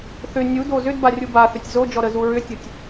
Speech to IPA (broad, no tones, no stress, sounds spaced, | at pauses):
θ ʏ nʲ u d o z ʏ d b a rʲ u b a θ ʏ tʲ z o d͡ʒ ɔ ɾ ə z u ɹ ʏ tʲ u tʲ